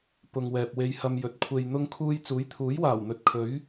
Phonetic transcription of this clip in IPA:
p ʊ˨ ŋ w ɛː˨ p̚ w e˧ j h ɐ˧ m j ɵ˨˥ t̚ kʷʰ e˨ j n̪ ʊ˧ ŋ kʰ uː˧ j t͡s uː˨˥ j t̪ʰ uː˨˥ j w aː˨˩ w n̪ ɵ˨ t̚ kʰ ɵ˨˥ ɥ

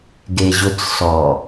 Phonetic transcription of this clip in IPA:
ɡ e ʑ ʊ t͡s s ɔ

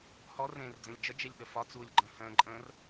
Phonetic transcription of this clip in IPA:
h ɔ r ẽː r d͡z ə̃ lʲ d͡ʒ ə d͡ʒ e lʲ ɗ ə f ɒ t͡s uː lʲ ɡ͡ǃ ə̃ː h ə̃ː ǃʼ ə̃ː r

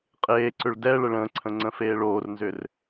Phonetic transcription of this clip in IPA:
qʼ eː ǀ ʏ ɭ d ɛ ɭ ə ɭ ə̃ː ǀʰ ə̃ ŋ͡ǀ ə̃ f eː ɭ oː r n z ʏ r

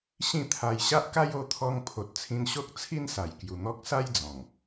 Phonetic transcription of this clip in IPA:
ɕ ĩ˥˧ t̪ʰ a˧ j ɕ a˦ ʔ k a˦ j o˧ t̪ʰ ɔ˧ ŋ pʰ o˨ t̚ t͡sʰ ĩ˧ n ɕ o˦ k̚ t͡sʰ i˦ n s a˨˩ j k j u˨˩ n̪ ɔ˦ k̚ s a˦ j d͡z ɔ̃˨˩ ŋ

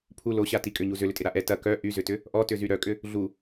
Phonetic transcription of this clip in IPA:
pʰ u l o ɕ a t i kʼ ʏ ɲ u z ʏ l ʏ tʼ ɪ ɾ a ʔ ɛ t ɐ k œ ʔ y z ʏ t ʏ | ʔ ɔ t ʏ z y ɾ œ kʼ ʏ | ɮ u

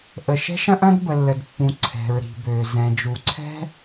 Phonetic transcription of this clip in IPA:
ʔ ə˩ ʃ ɛ̤˧ ʃ ɐ̃˧ ʔ ɐ̃˧ d b ə˩ lː ə˩ d pː ũ˩ ǀʰ ɛ̤˩ ɹ ɾ i̤˩ b øː˩ z ɛ̃˩ d͡ʒ u˩ ǀʰ ɛ̤˧

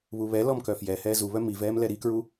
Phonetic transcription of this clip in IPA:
β u β ɛ l ɔ m k œ f j ɛ h ɛː z u β œ m i v ɛː m l ɛ ɾ i k ɹ u

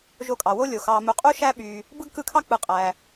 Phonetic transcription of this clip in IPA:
ʒ o˦ kʼ ɑ˩ w o˥ lʲ o˩ x ɑ˨ m u˨ qʼ u˥ ʃ æ˥ ɓ y˨ | b ɯ˥ ɡ k ɯ˦ kʰ ɑ˥ k͡p ɯ˨ qʼ æ˨

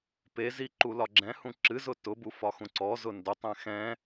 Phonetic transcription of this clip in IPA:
p e z i ǃ u l ɒ ɡ͡ǁ ɛ̃ h ũ ǁ ɨ z ʊ t ʊ b u f ɒ x ũ ǀ ɔ z ʊ n d ʊ tˤ ɛ̃ x ɛ̃

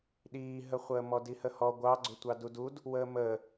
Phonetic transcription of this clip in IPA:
ɗ iː ɦ ə χʷ əː m ɔ d i h ə h ɔ ɡʷ ɑ ɡ͡ǀ ʊ tʷ ɑ d u d u d | w əː m əː

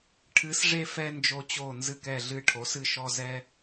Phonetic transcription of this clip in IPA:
ʈʰ ɨ˨˥ s ʐ e˦ f ɛ˦ n d͡ʒ o˦ t͡ɕ o˦˨ n z ɨ˦˨ k ɛ˦˨ ɮ ɨ˦˨ ʈʰ o˨˥ s ɨ˦˨ ʃ ɔ˦ z ɛ˦

